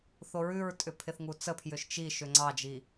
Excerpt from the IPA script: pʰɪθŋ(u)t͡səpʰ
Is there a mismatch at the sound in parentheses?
no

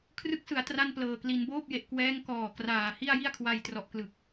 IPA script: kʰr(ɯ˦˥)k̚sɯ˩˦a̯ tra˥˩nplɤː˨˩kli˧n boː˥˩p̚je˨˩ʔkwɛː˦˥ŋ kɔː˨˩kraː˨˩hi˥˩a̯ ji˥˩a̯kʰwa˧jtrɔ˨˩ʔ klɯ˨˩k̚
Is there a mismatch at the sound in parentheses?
no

